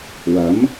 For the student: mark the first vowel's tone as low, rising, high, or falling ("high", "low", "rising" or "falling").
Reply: rising